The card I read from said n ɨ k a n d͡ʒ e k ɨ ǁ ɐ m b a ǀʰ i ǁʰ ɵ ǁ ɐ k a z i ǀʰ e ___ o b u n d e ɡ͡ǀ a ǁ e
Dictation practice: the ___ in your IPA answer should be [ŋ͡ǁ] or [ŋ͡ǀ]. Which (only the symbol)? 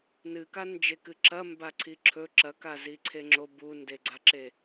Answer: ŋ͡ǁ